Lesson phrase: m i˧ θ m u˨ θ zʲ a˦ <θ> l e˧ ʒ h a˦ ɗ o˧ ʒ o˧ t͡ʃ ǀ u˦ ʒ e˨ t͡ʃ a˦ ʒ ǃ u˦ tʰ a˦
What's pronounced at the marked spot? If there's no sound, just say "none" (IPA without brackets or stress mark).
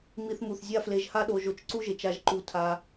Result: f